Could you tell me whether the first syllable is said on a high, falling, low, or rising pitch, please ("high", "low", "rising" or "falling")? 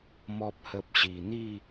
low